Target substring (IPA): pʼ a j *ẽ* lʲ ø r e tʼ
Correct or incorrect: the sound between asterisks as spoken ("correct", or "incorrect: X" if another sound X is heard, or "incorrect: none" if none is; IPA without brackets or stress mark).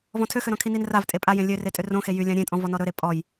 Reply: correct